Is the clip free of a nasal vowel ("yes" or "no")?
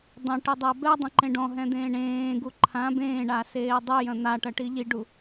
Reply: no